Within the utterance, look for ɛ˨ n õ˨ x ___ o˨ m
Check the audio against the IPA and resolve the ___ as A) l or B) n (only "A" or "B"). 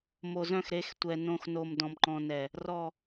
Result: B